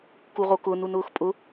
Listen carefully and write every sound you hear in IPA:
kuʁokʊ nunʊːxpʼʊ

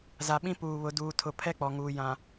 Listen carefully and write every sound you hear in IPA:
za˨ɓĩ˦ puː˨βʊ˨˦ duː˨tʰʊ˨ pʰɛ˦ k͡pɔ˨ŋuː˨ jã˨

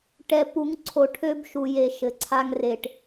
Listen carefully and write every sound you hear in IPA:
ʈɛ˨pu˨˦ŋǀʰo˨ ʈʰø˦bʃu˨je˨ ʃɘ˨ǀʰa˦ŋ re˨ʈ

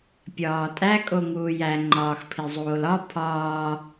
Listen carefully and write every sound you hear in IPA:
pʲɒːtʼæ kʼoŋuːjæ ŋ͡ǃɒːxpʰizˤoːlɒ pʰɒː

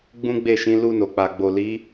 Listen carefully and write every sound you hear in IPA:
ɡ͡bũ˦ɡ͡be˦˨ʃĩ˨˦ lu˧no˨k͡pa˨ ɡ͡bo˨li˨˦

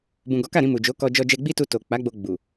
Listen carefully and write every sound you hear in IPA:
bũ˨ ɡɔ˨˦ka˦˨ɾĩ˧ mu˨d͡ʒo˨˦kɔ˧ d͡ʒɔ˧d͡ʒɛ˧ɡ͡bi˦tu˧ to˨ k͡pa˨˦ɡ͡bo˧ ɡ͡bu˨

